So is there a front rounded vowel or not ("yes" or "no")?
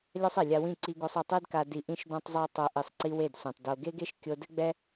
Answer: no